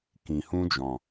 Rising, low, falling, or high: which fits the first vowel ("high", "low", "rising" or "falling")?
low